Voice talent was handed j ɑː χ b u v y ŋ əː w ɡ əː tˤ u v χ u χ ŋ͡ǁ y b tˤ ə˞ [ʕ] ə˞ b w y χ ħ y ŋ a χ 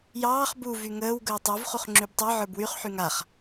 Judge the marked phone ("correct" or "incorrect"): correct